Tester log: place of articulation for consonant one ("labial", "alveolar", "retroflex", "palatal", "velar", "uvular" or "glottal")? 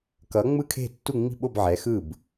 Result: velar